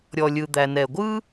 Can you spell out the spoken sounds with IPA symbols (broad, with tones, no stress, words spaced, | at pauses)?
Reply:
ɾʲɔ˩lʲɯ˩ d̪æ˩nɛ˩ɡʷɯ˥